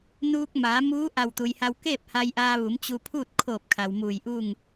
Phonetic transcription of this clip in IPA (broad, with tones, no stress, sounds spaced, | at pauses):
n uː˧ k̚ m aː˩˧ m uː˧˥ ʔ a˧˩ w t̪ u˩ j h a˧ w k eː˥˨ p̚ h a˧ j ʔ aː˧ ʋ u˩˧ m t͡ɕ u˧ pʰ uː˥˨ t̚ kʰ oː˧˩ p̚ kʰ a˩ w m uː˧˩ j ʔ uː˥˨ ŋ